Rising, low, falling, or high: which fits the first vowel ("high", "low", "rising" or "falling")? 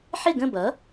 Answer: falling